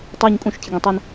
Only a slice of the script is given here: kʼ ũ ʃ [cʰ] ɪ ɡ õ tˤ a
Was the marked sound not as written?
no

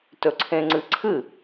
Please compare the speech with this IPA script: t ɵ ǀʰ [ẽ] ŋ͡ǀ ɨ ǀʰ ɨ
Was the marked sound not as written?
no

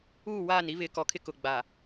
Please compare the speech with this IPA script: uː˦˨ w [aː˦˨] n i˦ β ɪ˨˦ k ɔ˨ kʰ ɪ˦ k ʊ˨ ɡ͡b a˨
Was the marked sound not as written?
no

